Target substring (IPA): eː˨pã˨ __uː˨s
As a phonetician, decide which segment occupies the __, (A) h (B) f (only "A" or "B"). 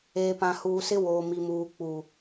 A